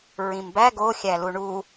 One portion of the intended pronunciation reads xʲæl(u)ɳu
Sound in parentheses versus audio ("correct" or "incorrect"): correct